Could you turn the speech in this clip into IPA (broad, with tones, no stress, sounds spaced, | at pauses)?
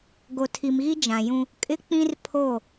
ɡ o˨ tʰ i˨ m ɣ i˦ d͡ʒ ã˨ j ũ˦ | kʼ ɪ˦ k͡p ĩ˦ r pʰ o˦˨